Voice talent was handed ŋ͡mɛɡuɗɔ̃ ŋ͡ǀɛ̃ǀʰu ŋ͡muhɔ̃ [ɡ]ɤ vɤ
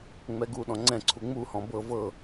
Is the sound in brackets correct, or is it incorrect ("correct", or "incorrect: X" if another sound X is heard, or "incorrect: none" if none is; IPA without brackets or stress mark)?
incorrect: b